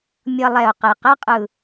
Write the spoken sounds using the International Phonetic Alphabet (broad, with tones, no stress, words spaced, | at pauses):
mʲʌ˧lˠɛ˨˩ʊ̯qe˨˩ qɛ˦˥qʼɯ˨˩